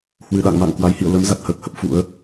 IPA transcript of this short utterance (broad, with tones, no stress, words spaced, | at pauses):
hwɨ˨˩ɗa̰˧˨ŋma̰˧˨ŋ kwa˨˦jhḭ˧˨ə̯ lə˨˦m za˨˩t̚həː˦˥k̚hə˦˥p̚ fṵ˧˥ə̯